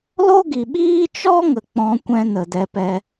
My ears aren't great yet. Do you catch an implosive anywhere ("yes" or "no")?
yes